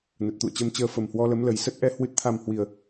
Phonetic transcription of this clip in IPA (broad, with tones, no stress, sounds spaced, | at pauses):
n ə˨˩ t̚ t̪ ṵ˧˨ ə̯ t͡ɕ ə˧ m t͡ɕ əː˧ f ə˨˩ m h w ɔ˧ l ə˨˦ m l ə˨˩ j s ə˦˥ t̚ ʔ ɛ˨˦ h w ɨ˨˩ t̚ t̪ʰ a˨˩ m h w i˨˩ ə̯